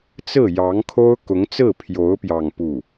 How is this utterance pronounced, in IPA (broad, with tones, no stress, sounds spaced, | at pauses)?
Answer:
t͡s ɹ̩˥˩ j ɑ˧˥ ŋ kʰ o˥ ʊ̯ k ʊ˧˥ ŋ t͡s ɹ̩˥˩ pʰ j o˧˥ ʊ̯ p j ɑ˥˧ ŋ p u˥˩